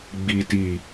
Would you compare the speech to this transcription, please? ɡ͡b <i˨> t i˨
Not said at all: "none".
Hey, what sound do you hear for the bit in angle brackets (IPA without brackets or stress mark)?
i˨